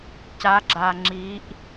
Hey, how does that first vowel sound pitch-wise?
rising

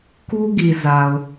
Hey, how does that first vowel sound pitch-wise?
high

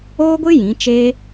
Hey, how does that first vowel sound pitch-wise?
high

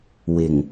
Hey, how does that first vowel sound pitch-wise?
low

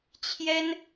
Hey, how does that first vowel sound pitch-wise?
high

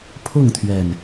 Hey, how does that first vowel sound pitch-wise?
falling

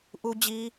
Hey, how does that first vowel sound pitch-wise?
high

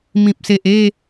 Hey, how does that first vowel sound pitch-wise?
low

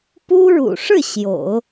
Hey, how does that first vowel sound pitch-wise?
high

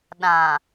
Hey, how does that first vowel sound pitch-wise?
low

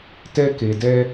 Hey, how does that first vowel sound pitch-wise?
high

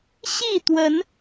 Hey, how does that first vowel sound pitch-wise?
falling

